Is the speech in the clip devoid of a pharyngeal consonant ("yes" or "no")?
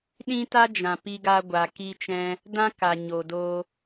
yes